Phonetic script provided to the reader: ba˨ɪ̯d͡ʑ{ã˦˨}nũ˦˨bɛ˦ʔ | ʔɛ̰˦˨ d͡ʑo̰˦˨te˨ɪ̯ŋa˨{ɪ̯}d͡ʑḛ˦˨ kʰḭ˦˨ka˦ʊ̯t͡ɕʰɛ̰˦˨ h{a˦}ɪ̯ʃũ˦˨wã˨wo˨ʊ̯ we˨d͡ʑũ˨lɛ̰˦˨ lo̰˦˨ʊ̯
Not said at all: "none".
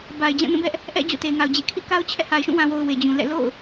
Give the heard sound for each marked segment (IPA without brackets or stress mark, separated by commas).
ã˦˨, ʊ̯, a˨